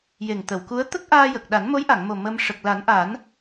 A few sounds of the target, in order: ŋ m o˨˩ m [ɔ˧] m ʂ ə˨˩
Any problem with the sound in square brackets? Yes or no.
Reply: yes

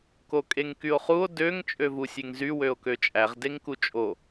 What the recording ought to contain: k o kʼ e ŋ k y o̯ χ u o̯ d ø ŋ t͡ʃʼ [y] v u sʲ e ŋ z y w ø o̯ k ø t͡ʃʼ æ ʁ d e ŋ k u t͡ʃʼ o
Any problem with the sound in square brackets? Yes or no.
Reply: yes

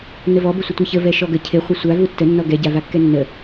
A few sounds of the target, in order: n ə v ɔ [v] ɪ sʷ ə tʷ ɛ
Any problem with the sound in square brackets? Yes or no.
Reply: yes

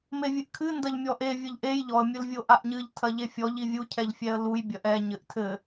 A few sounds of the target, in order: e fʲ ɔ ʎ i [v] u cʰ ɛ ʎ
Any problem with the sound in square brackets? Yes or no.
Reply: yes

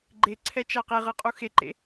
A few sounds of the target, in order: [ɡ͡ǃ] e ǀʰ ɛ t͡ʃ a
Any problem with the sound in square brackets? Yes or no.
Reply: no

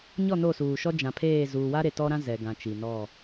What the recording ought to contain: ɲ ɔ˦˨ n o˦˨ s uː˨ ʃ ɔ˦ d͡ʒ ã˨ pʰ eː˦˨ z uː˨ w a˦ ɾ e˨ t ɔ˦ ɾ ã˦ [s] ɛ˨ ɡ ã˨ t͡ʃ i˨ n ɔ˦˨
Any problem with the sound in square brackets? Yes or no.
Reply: yes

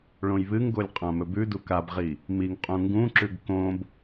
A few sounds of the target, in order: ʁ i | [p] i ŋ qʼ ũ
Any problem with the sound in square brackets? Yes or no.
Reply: yes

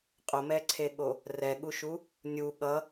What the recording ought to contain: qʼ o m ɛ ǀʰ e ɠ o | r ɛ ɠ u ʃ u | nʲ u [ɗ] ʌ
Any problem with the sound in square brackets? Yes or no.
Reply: yes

